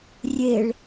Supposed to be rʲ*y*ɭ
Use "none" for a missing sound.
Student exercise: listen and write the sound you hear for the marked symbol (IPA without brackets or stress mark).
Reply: e